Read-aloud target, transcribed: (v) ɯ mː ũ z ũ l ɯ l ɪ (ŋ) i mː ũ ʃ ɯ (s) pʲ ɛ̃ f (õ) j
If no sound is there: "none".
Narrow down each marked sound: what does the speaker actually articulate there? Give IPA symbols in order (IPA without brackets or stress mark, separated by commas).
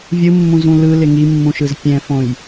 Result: vʲ, ŋ, z, õ